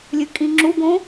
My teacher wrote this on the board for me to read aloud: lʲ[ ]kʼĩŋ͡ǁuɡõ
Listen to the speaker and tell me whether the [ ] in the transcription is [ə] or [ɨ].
ɨ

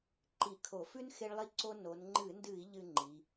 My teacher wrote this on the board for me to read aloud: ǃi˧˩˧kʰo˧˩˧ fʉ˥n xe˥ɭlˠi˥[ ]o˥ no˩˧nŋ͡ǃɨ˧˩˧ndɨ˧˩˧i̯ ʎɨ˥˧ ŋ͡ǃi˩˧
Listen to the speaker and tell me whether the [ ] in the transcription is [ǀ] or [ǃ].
ǀ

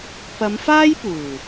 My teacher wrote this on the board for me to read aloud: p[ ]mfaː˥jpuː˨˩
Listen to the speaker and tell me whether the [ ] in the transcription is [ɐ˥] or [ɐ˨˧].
ɐ˨˧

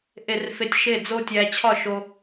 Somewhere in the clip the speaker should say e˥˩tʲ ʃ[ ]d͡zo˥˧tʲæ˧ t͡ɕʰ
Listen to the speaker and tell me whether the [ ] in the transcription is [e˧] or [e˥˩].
e˥˩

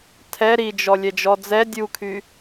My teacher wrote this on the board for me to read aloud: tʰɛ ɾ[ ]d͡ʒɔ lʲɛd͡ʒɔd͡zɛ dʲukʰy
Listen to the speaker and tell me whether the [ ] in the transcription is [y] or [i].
i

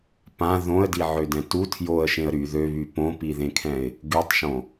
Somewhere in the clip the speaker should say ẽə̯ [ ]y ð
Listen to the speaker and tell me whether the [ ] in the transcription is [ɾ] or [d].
ɾ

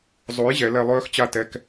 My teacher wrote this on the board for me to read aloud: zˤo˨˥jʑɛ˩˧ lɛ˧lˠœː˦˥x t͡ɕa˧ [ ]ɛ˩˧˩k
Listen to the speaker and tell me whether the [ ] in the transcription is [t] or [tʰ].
t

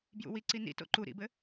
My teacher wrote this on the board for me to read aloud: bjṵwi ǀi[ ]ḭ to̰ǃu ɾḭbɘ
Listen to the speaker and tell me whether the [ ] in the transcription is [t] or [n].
n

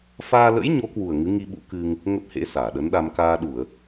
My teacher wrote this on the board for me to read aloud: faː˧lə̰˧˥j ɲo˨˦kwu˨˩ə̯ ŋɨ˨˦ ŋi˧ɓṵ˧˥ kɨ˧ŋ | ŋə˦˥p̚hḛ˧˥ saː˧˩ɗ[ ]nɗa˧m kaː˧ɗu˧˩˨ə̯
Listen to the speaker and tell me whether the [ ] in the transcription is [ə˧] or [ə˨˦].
ə˨˦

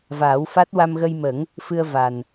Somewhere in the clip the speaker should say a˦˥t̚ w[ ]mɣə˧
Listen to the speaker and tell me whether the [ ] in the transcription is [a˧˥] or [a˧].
a˧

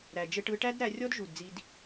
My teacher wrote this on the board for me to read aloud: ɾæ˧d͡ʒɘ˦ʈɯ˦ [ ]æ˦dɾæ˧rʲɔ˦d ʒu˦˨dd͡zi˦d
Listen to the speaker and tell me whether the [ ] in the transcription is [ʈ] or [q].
ʈ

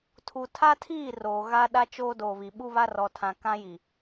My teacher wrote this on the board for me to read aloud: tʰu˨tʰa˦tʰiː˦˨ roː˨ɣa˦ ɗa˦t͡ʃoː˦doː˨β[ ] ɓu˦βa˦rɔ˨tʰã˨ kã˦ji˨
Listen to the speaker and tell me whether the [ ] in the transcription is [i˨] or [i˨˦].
i˨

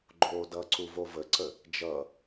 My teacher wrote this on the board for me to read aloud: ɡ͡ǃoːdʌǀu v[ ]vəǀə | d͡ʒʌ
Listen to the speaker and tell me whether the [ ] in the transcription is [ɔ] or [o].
o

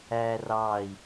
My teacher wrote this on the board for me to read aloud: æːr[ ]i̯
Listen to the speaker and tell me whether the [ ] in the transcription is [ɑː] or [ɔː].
ɑː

